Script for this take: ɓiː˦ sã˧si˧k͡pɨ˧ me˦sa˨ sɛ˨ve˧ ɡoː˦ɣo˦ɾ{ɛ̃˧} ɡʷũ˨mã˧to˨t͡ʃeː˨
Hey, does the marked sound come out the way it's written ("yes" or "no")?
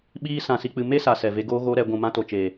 no